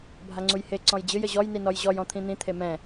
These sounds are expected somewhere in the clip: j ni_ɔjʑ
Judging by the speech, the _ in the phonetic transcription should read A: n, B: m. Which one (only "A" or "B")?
A